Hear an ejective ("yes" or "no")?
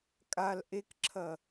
yes